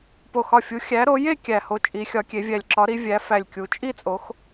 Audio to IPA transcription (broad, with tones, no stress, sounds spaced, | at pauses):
p o˧˩ x ɒ˧˩ fʲ u˨˦ xʲ æ˨˦ ɾ o˨˦ j e˥˧ kʲ æ˧˩ h o˧˩ t͡ʃʼ i˨˦ xʲ ɒ˨˦ kʲ e˨˦ vʲ æ˧˩ lʲ ǁ ɒ˨˦ ɾ i˨˦ vʲ æ˨˦ f æ˧˩ lʲ kʲ u˨˦ t͡ʃʼ i˥˧ t͡sʼ o˨˦ x